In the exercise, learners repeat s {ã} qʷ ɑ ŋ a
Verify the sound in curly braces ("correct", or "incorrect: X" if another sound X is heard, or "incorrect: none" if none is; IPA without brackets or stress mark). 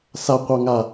incorrect: a